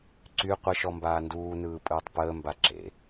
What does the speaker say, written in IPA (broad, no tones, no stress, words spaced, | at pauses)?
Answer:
ǀy qʷəʃɔ mbaːnduːnɯː pʼɯːtˤpəːmba ǁḛ